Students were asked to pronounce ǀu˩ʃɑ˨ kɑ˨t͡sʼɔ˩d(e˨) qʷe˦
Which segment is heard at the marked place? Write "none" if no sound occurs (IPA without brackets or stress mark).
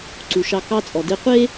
e˨